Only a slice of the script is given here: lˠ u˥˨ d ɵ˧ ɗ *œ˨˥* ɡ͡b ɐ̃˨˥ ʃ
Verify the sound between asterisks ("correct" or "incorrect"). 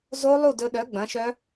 correct